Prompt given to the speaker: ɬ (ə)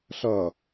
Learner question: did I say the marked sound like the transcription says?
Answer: no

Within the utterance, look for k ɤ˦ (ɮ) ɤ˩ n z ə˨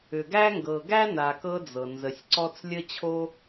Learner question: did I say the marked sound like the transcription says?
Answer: no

